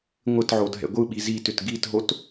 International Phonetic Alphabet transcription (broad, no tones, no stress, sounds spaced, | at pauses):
ŋʷ ɪ t ʕ o dʱ ɛ̰ ɡʷ ɯ ɓ i z i t ʏ t ɡ i t ɦ o t